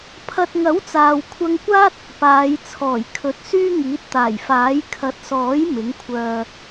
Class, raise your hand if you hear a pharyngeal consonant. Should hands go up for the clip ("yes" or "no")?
no